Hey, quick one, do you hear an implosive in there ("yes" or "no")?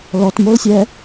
no